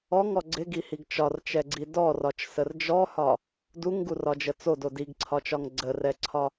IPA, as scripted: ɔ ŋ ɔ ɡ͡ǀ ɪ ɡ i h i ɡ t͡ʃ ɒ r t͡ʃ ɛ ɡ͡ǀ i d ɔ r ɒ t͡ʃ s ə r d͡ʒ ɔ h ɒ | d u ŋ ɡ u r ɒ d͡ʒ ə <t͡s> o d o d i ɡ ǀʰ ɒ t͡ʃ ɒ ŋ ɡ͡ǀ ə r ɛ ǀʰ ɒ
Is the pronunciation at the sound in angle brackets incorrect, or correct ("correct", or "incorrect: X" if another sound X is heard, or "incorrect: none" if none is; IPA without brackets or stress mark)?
correct